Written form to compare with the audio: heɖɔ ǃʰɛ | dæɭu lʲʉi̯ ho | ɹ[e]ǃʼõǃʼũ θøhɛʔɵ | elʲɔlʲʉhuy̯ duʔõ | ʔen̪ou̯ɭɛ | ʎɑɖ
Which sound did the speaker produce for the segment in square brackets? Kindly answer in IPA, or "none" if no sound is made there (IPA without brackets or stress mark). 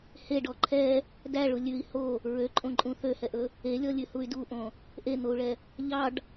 ø